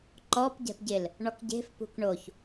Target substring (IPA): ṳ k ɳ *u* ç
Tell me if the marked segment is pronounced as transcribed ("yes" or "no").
no